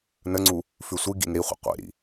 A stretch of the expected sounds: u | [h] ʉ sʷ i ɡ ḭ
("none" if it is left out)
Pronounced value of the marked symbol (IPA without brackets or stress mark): f